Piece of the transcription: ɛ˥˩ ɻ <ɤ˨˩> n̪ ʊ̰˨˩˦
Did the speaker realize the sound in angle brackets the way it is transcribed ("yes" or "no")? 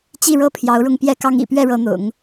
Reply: no